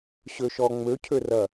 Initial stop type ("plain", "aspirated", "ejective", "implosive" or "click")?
aspirated